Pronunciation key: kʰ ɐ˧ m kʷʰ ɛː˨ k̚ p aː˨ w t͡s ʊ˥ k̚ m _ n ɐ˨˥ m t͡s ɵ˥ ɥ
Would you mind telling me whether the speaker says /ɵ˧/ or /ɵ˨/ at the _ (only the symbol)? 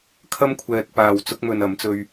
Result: ɵ˧